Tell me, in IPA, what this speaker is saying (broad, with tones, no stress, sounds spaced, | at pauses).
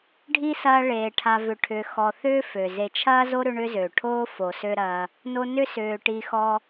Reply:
ɖʱ i˥ s ɐː˦ ɭ eː˩ ʈʰ a˨ v ʏ˨ ʈʰ ʏː˨ x ɔ˨ θ ʏː˦ f ø˩ z e˨ t͡ʃʰ ɐː˥ z o˥ ɾ ʏ˦ ɳ ʏ˦ z ø˩ ʈʰ oː˦ f o˨ s ø˥ ɾ ɐː˦ | n o˦ n ʏ˥ s ʏː˨ ʈ i˦ x ɔ˥